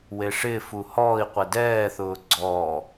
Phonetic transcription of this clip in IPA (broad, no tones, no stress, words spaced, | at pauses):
weʂɪː fuhɔːi̯qʷɛ dɛːθʊː ɡ͡ǀɔː